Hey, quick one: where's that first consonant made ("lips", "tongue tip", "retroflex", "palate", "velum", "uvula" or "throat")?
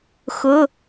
velum